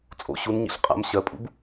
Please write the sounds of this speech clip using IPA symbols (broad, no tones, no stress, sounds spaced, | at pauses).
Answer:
t͡sʼ o̰ ɕ u n ɲ ḭ ɬ qʼ a̰ m ɕ ɜ pʼ ṵ b